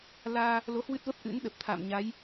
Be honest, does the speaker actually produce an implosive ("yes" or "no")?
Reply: yes